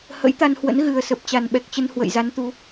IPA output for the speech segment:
hə̰˧˥jt̪a˧nhwə̰˧˥n ɣɨ˨˩ə̯sə˨˩p̚ t͡ɕa˨˩nɓɛ˨˩k̚t͡ɕə˧n hwə̰˧˨jza˨˦nt̪u˨˦

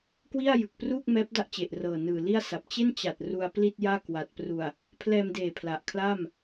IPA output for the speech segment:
kwi˥˩a̯jɯ˨˩k̚pru˥˩k̚ mɛː˦˥p̚da˥˩ʔt͡ɕe˨˩ʔ rɤː˨˩nɯː˨˩li˥˩a̯sa˨˩p̚ t͡ɕe˥˩nt͡ɕa˨˩t̚ ru˧a̯pli˥˩t̚jaː˥˩ kwa˨˩t̚ pru˨˩a̯ | pʰlɛː˧mdeː˨˩ pʰla˨˩ʔkʰlaː˥˩m

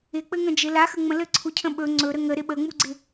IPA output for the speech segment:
ɪ k͡pɘŋə̃d͡ʒɪ laxə ŋ͡mə̃lɘǀʰucʰə̃ ɓɵ ŋ͡ǀɵɾə ŋə ɾɪɓəŋ͡muɡ͡ǀɪ

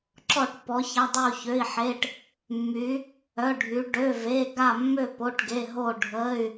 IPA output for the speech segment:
ǁɔ˥˧ʈpɔ˧˥ ça˧˥˧dˤy˥˧u̯çø˧˥˧i̯ħe˧˥˧ʈ | mːy˧˥ | œ˧˥˧ɖʱy˧˥ ɖø˧˥˧ve˧˥˧ ɡa˥˧ mːø˥˧ po˧˥˧ʈɡe˧˥˧ ɦo˥˧ɖʱə˧˥˧y̯

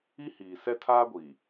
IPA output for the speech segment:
i˦hiː˨ sɛ˦tʰaː˦ɡʷiː˨

